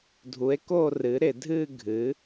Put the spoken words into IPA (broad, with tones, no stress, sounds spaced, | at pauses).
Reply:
dʱ u˩˥ e̯ k o˥˧ r ɨ˩˥ ɾ ɪ˧˩˧ dʱ ɨ˥˧ ɡʱ ɨ˩˥